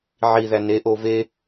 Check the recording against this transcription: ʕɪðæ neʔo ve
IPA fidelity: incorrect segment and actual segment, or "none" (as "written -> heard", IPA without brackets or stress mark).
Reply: ɪ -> i